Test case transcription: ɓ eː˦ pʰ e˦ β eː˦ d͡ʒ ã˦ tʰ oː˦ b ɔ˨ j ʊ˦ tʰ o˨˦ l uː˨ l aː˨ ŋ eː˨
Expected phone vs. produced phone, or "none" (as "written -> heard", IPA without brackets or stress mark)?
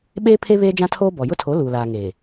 none